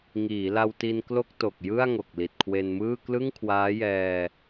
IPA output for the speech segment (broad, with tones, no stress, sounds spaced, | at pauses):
ŋ iː˩˦ l a˧ w t i˧ n k l o˥˩ k̚ t o˨˩ k̚ j ɯ˥˩ a̯ ŋ o˨˩ k̚ l i˨˩ t̚ kʰ w e˧ n m ɯː˥˩ k l ɯ˥˩ ŋ kʰ w aː˦˥ j ɛː˧